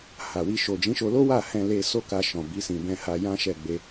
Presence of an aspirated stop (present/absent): absent